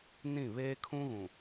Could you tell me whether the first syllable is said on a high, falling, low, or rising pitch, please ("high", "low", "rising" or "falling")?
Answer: falling